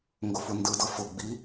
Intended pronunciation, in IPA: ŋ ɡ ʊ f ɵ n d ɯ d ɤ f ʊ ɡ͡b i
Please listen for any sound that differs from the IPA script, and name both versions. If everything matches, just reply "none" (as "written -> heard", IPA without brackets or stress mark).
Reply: ɵ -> ʊ